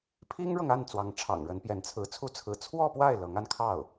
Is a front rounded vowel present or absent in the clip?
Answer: absent